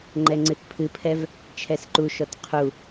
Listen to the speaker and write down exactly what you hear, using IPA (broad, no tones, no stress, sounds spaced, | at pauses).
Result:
ŋ͡ǃ ɛ ŋ͡ǀ ɨ t pʰ ɨ pʰ ɛ v | t͡ʃʰ ɛ s ǃ u ʃ ɔ t qʰ u